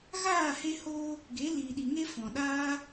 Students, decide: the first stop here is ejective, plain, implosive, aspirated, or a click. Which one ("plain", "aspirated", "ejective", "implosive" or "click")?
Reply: plain